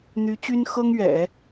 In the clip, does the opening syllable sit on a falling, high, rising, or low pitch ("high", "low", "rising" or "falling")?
rising